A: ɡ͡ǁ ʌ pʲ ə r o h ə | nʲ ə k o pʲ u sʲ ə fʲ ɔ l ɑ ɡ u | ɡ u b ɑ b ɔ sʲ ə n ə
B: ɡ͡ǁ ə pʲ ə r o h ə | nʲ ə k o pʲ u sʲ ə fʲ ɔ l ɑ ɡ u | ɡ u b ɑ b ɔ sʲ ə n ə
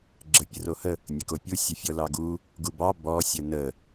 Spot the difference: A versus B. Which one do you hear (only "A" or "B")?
B